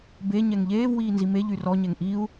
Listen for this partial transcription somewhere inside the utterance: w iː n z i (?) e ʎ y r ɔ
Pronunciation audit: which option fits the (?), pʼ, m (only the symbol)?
m